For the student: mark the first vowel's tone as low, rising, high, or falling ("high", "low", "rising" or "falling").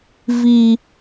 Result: low